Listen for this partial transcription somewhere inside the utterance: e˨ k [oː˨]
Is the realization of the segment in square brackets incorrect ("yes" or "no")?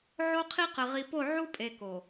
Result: yes